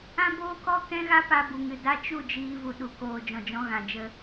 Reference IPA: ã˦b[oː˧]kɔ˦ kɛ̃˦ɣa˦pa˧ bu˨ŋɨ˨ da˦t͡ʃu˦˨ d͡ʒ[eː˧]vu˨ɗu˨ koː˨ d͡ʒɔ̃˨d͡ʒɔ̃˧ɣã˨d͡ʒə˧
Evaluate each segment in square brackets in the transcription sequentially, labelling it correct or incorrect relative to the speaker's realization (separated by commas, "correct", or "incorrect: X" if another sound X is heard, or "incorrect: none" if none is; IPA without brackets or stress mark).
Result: incorrect: oː˦, incorrect: iː˧